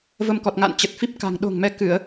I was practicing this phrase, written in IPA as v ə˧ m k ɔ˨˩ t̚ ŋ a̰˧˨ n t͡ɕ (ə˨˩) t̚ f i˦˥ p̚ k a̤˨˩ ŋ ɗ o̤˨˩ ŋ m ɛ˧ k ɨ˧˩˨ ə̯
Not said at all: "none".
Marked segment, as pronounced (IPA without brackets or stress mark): ə˨˩